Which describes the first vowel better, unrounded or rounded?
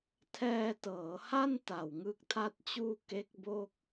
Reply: unrounded